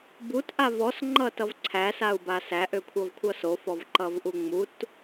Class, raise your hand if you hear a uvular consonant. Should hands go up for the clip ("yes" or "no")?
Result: no